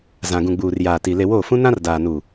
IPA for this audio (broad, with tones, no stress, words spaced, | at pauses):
zã˨ɡũ˨ɡ͡buː˨r jaː˨ti˨ le˨woː˦˨fũ˦ nã˦rdaː˨nu˨